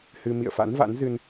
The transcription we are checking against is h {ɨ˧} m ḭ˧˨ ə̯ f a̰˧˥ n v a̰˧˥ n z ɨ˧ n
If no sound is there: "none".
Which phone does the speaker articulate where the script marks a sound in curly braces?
ɨ˧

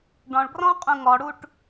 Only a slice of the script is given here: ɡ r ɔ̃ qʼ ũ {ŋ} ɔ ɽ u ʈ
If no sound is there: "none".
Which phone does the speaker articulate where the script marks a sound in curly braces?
ŋ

